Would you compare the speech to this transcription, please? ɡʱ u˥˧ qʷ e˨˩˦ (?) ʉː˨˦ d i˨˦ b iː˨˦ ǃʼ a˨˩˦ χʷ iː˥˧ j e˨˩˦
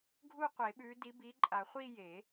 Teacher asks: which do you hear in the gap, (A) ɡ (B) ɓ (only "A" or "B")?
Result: B